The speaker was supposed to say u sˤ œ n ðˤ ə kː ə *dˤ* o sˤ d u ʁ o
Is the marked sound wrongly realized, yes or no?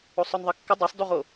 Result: no